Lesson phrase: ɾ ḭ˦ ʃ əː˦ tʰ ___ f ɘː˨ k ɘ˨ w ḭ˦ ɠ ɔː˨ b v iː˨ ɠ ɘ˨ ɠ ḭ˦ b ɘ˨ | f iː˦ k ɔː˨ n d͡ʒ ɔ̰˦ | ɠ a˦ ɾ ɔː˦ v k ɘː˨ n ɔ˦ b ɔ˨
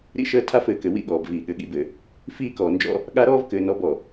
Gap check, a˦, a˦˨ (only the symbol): a˦